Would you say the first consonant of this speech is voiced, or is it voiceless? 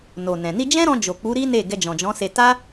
voiced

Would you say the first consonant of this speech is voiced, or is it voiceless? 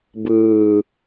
voiced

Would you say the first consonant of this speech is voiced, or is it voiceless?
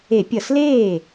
voiceless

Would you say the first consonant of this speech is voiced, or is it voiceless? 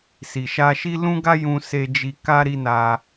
voiceless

